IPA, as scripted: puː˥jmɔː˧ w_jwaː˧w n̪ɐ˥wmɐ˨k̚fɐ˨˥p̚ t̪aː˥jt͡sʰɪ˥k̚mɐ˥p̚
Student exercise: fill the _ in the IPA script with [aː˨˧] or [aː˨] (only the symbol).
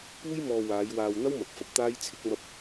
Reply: aː˨˧